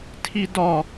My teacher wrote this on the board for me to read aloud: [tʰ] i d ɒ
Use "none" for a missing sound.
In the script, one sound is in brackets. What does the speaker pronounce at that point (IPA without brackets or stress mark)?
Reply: tʰ